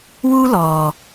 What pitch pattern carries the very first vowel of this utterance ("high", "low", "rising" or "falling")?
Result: high